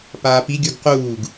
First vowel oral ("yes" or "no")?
yes